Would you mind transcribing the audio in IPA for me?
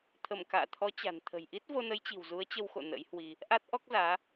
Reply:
t̪ʰ ə˧˩ m k a̰ː˧˨ t̪ʰ ɔ˨˦ t͡ɕ a̤˨˩ n t̪ʰ ə̤˨˩ j ʔ i˦˥ t̚ v o˧ n ə˨˦ j t͡ɕ i̤˨˩ w z u˨˦ ə̯ t͡ɕ ə˧ w x o̰˧˨ n ə̰˧˥ j h w i˧ | ʔ a˦˥ t̚ ʔ ɔ˦˥ k̚ z aː˨˦

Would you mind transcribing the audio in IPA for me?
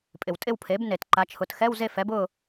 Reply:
pʼ ɪ˩ w tʼ ɪ˥˨ w pʰ e˩˥ b n e˩ t ǃ a˩˧ t͡ʃʰ ʊ˩˧ t x ɛ˧˥˧ w z e˥˨ f ɛ˩˥ b ʊ˥˨

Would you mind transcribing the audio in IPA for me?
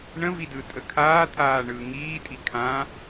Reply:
ɳ ə̃ v i d ɯ tʼ ə kʰ aː t̪ʰ aː ɳ ɯː ŋ iː tʼ i kʰ ã

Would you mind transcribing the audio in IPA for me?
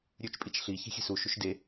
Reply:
ɾʲ ʉ t͡ʃ pʼ i t͡ʃ ɬ i ç e̤ xʲ e̤ s u ʃ u ʃ d e

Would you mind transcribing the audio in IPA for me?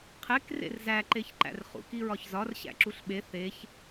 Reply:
qʰ e k r ḛ r z æ ǃ e ç ǃ æ̰ r χ ṵ k i ɹ ɒ ç z ɒ r ɕ æ̰ ǁ u ɬ ɓ e θ e ç

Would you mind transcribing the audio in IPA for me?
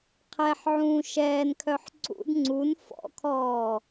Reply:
qʰ ɛ ħ ʕ ũː ʃ ɛː n kʰ œ ħ ǀ ṵ d ŋ͡ǀ u n f ɔ̰ kʰ ɔː

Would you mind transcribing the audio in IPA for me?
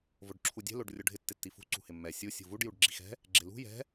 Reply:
v o ɖ ǁʰ u dʲ ɛ̤ l o ɖ rʲ o ɖʱ ɪ tː ɪ tː i f ṳ ǀ ṳ h ɪ mː ɛ sʲ u sʲ ṳ v u ɖ j u ɖ ɡ͡ǁ i x ɛ̤ | ɡ͡ǁ ɪ l ṳ j ɛ̤

